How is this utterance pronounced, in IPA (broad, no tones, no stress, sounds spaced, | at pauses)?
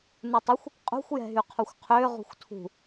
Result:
n u tˤ ɪ xʷ | qʼ ṳ xʷ j ɛ̤ ɦ y qʰ o xʷ qʰ ʏː ʁ ṳ xʷ tʰ ṳ